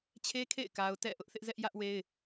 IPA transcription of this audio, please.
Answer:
t͡ɕʰ e˦ kʰ ḛ˦˨ ɪ̯ k a˦ ʊ̯ t ɛ̰˦˨ ʔ ʊ˦ ʔ θ ɪ˦ ʔ z ɛ˦ ʔ j ä˦ ʔ w e˦ ɪ̯

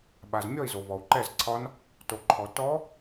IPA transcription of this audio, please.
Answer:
ɓ a˨ z mʲ ɔ˥˧ i̯ z o˨ v ɔ˨ u̯ ǃ ɛ˥˧ z ǀʰ ɒ˦˥ n | t o˨ ǃʰ ɔ˨ t ɔ˦˥

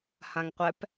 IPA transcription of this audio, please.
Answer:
h ã ŋ qʷ ɛ p

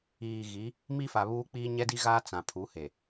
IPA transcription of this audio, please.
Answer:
iː˨ ɣ i˨˦ | m i˦ f a˨ β uː˦ k͡p iː˦ ɲ ɛ˦ d i˦ ɣ aː˦ t͡s ã˨ pʰ u˨˦ h e˨

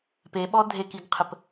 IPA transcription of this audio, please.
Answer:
p e ɓ ɔ dʱ e k i ɡ qʰ ə p

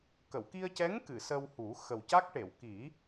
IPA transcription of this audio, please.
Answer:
k ə˨˩˨ w k i˧ ə̯ c ɛ˧˥ ŋ k ɨ˨˩˨ s ə˧ w h u˨˩˦ x ə˨˩ w c a˦˥ k̚ ʈ e˨˩˨ w k i˨˩˦

